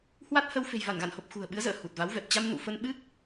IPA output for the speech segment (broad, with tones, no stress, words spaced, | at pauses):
hwa˦˥t̚hə˧w fe̤˨˩jva˧˩nɣa̰˧˨nho˨˩p̚ xṳ˨˩ə̯ɓɨ˨˦ə̯zə̰ː˧˨ hu˨˩t̚va˨˦wvɛ˨˩p̚ t͡ɕa˧m nṵ˧˨fə˧nɓɨ˦˥k̚